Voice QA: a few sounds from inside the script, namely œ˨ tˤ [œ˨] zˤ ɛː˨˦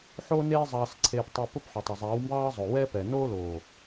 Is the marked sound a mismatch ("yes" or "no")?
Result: no